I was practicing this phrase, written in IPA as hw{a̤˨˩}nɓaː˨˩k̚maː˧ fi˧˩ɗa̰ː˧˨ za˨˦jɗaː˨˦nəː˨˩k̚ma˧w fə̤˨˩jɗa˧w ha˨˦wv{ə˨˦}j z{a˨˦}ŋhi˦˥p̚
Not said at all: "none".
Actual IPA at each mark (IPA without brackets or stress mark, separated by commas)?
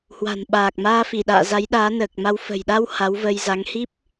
a̤˨˩, ə˧, a˨˦